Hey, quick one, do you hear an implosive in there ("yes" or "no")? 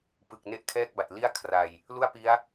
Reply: no